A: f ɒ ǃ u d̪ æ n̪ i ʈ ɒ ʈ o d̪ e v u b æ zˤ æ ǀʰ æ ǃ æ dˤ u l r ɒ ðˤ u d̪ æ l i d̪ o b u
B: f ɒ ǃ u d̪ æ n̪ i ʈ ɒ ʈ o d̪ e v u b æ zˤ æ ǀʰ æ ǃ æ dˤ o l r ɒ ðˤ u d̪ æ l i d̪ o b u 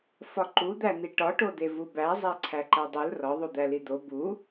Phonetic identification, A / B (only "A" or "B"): A